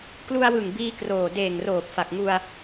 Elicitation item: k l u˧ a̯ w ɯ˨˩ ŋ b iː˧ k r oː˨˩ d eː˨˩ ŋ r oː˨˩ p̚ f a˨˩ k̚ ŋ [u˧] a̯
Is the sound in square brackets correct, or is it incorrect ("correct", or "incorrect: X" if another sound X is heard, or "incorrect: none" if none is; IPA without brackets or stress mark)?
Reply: correct